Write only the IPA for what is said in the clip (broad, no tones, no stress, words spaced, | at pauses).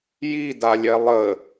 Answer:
jidalʲɛ lˠə